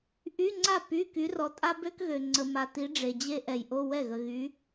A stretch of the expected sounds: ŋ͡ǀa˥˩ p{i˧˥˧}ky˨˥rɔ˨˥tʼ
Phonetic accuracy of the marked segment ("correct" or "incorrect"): incorrect